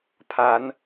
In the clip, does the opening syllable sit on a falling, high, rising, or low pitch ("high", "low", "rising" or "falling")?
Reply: rising